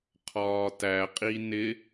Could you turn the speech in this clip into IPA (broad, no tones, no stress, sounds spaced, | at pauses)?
qʰ ɒː t æ qʼ i n ɪ